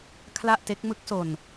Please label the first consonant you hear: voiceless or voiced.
voiceless